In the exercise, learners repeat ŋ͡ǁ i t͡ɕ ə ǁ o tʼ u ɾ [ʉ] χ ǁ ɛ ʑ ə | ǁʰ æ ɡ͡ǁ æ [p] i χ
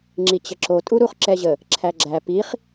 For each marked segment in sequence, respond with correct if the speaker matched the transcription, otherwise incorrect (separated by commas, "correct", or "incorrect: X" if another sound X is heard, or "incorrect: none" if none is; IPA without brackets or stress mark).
incorrect: u, correct